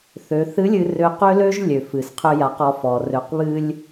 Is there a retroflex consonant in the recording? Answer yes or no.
no